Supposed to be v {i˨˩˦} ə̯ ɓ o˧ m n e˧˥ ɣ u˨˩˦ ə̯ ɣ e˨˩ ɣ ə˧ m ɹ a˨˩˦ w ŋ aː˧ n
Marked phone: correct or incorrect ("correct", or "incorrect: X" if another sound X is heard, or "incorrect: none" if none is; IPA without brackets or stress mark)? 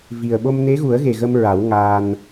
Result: incorrect: i˨˩